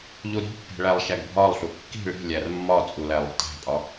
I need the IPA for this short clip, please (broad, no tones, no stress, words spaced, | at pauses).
ʎuɾi̤pːe̤ ɭælˠʃæɡbʱɒlˠɬu kːi̤ ɭi̤ lʲærmːɒt͡sʼu lælˠṳtæ̤pʼɒ